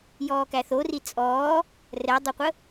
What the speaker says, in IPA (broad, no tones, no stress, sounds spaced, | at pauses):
j ɔː k æ θ o r i t͡sʼ ɔː | r ɛ dˤ ɜ qʷ ə